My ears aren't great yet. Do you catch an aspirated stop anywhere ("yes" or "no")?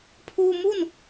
yes